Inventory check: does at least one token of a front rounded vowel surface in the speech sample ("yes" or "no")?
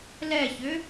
yes